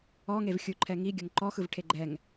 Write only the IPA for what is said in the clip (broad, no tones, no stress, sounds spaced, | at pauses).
ɔ ŋ e v xʲ u ǃʰ ɛ ŋ i ɡʲ ɤ ŋ ǃ ɔ x ɯ v ʈʰ e ɡ͡ǃ ɛ ŋ